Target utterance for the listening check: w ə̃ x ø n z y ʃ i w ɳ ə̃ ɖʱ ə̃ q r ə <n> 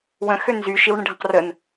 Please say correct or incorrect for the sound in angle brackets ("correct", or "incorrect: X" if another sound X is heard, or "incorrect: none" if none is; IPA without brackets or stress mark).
correct